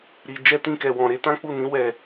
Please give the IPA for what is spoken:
ɾ i˨ d͡ʒ ɛ˧ t ĩ˧ k ɛ˨ w ɔ̃˨ ɾ e˧ t ã˦ k͡p u˦˨ n ĩ˨˦ w ɛ˦˨

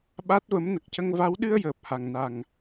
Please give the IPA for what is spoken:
ɓ a˦˥ t̚ v ə˧˥ m n ə˨˩ k̚ c ə˧ ŋ v a˧˥ w ɗ ɨ˧ ə̯ j əː˨˩ p̚ h a˨˩ ŋ n a˨˩ ŋ

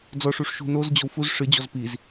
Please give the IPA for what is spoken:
d͡z ɔ ʂ u ʂ ʃ ṳ n o z d͡ʑ o w f u z ʂ ɨ d͡ʑ ɔ z p i z

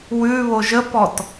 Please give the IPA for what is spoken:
w ʉ β o ʒ ə p ɔ t

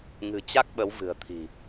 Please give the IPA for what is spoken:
ŋ ɨ̤˨˩ t͡ɕ a˦˥ k̚ ɓ ə˨˦ w v ɨ̤˨˩ ə̯ t̪ʰ i̤˨˩

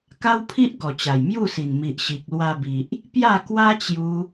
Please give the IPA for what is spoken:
k a˦ w pʰ i˦ ʔ ɡ ɔ˨˩ t͡ɕ a˨˩ j m j u˥˧ s i˨˩ n m i˨ ʔ ɕ i˨ k̚ l w a˧ b i˨ ʔ | p j a˥˧ k w a˦ t͡ɕ j u˧

